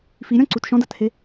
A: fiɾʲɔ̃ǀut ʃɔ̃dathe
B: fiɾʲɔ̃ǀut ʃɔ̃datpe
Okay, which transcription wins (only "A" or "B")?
A